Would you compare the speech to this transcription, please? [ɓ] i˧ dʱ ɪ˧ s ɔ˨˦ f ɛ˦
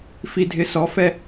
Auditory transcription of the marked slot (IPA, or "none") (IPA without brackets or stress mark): f